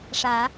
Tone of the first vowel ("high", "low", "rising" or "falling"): rising